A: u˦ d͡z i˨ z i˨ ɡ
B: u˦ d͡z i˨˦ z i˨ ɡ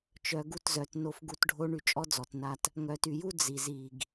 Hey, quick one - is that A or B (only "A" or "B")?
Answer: A